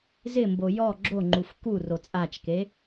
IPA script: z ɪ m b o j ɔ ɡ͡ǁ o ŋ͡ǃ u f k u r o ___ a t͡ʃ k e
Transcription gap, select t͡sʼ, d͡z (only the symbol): t͡sʼ